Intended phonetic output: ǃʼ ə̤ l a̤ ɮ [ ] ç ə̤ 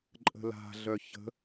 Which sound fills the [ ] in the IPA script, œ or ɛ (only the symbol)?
œ